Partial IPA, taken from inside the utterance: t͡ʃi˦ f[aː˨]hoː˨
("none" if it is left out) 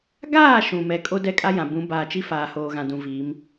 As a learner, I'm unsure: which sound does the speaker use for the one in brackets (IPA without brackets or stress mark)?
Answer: aː˨